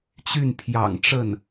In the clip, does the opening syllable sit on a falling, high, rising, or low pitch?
falling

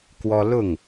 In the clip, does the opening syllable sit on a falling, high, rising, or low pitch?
high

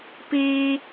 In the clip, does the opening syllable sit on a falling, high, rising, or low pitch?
high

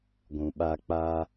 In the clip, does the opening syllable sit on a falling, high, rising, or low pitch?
low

